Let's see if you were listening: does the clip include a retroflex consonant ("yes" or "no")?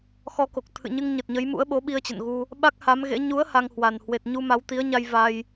no